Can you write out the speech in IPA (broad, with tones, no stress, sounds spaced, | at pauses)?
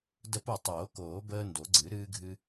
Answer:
d ə˦˨ p o˦˨ tˤ oː˨˩˦ k oː˨˩˦ b əː˦ n d o˨˩˦ ɡ͡ǀ ɨ˨˩˦ ɾ ɨː˦ ɡʱ ɨ˦